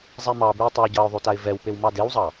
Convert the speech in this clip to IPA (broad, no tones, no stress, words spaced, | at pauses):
zˤɛmɑbʉɪ̯ tˤawɟɑʊ̯ðˤʉ taɪ̯vɛwpew mɑdewzˤɑ